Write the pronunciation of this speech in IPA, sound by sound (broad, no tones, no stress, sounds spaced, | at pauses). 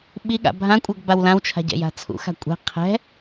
ɓ i ɠ a̰ bʱ ã kʷʼ ʌ ɡ b a w l ã w t͡ʃʰ a̤ ɟ ɛ̰ j a̤ t͡sʰ ṵ x a̤ kʷʼ ɛ̤ qʰ ɛ̤